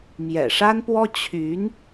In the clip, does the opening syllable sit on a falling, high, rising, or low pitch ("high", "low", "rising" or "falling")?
low